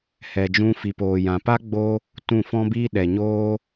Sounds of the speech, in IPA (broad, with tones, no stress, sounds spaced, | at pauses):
h ɛ˨ d͡ʒ ũ˧ f i˨ p oː˨ j ã˨ p a˦ ɡ͡b o˦ | t ũ˦˨ f ɔ̃˦ b iː˦ ɗ ɛ˨ ɲ oː˦